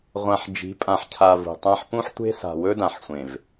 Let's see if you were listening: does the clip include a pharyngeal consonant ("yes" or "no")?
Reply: yes